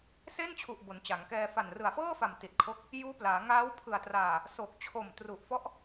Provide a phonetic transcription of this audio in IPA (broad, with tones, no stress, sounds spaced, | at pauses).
s e˥˩ n t͡ɕʰ u˨˩ ʔ b o˩˦ n t͡ɕ a˩˦ ŋ k ɛː˧ f a˨˩ n r ɯ˨˩ a̯ f ɤː˥˩ f a˨˩ m t i˨˩ t̚ kʰ o˦˥ k̚ | j uː˦˥ p l aː˩˦ ŋ aː˦˥ w pʰ ɯ˨˩ a̯ t r aː˨˩ | s o˨˩ k̚ t͡ɕʰ o˨˩ m t r u˨˩ ʔ f ɔ˦˥ ʔ